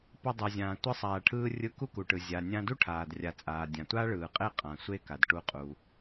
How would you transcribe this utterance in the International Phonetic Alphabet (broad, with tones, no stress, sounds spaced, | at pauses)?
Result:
p ʌ˧ dˤ ɛ˩ zʲ ãː˩ tʷ ɯ˧ sˤ aː˩ ʈʰ ɯː˧ rʲ ɯ˧ k u˥ k u˩ ʈ ɯ˩ zʲ a˩ nʲ ã˧ d u˥ ʈʰ aː˩ d rʲ a˩ t͡sʼ aː˩ dʲ ã˩ tʷ a˥ ɭ ɯː˩ qʼ e˥ qʼ ã˩ sʷ e˥ k a˩ d ʈ u˧ qʼ u˩